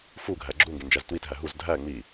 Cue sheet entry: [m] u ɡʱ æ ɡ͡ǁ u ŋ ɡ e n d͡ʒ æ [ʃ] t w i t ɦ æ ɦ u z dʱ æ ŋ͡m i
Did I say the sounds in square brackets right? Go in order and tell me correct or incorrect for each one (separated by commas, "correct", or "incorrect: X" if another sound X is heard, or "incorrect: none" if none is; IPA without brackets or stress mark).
incorrect: f, incorrect: z